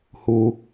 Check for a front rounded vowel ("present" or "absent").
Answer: absent